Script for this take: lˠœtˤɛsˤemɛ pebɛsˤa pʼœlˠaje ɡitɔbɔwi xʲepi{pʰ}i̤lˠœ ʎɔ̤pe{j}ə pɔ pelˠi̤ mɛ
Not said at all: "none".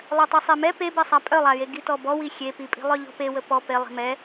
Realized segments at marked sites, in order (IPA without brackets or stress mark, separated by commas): pʼ, w